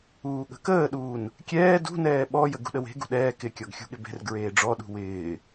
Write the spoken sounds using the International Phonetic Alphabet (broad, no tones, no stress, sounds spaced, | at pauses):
uː ɠ ə̤ k əː ɗ uː n | kʲ ɛː d ṳ n ɛː ɓ ɔ j ə ɡ ṳ ɗ ə w e̤ ɡ ṳ ɗ ɛː k ɪ kʲ ɔ ɡ xʲ ṳ ɠ ɪ b e̤ r ɡ ɹ eː ɖ͡ʐ ɔ ɗ ṳ w ɪː